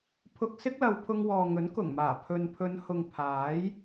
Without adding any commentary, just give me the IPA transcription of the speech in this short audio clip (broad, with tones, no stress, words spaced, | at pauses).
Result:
pʰʊ˧k̚sɪ˥k̚lɐ˨˧w pʰʊ˧ŋwɔː˨ŋɵ˨˥n kʊ˨˩ŋmaː˨˩ pʰɵ˨npʰɵ˨˧nhʊ˨ŋ pʰaː˨˥j